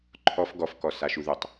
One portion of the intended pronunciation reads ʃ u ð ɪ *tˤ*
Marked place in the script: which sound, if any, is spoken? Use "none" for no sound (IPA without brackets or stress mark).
tˤ